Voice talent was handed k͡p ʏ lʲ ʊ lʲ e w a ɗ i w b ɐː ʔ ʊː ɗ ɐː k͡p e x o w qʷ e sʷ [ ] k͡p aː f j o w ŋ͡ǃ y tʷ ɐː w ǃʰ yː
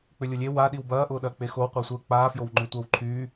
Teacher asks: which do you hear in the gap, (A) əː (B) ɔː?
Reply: A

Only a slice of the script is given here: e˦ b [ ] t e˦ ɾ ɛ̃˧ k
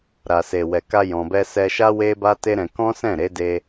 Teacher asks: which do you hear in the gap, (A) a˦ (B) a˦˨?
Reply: A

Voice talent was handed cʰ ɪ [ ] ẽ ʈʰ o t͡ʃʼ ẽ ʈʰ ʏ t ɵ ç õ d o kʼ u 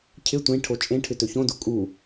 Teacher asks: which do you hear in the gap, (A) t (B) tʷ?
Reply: B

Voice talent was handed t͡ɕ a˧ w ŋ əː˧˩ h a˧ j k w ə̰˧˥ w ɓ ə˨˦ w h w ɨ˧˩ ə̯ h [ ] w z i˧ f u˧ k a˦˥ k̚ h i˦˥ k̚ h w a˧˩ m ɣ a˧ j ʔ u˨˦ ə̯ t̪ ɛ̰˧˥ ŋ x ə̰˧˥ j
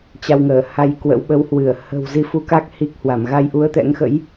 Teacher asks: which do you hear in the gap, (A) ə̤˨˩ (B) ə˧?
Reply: A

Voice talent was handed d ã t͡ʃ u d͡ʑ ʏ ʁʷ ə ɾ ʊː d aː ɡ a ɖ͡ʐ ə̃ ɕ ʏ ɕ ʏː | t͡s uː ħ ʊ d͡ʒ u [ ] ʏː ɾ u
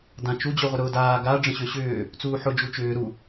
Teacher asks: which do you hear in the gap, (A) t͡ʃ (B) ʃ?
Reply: A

